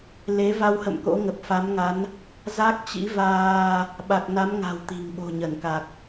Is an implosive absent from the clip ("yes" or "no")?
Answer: no